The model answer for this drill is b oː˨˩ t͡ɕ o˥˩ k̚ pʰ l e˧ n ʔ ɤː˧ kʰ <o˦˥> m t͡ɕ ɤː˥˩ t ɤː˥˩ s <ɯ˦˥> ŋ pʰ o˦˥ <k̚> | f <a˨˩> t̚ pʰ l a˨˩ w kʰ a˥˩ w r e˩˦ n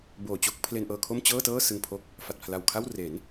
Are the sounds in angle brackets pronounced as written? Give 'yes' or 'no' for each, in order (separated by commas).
no, no, yes, yes